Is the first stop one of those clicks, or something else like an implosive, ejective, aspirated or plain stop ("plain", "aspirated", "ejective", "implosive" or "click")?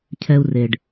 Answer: aspirated